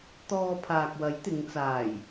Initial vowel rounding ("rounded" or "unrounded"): rounded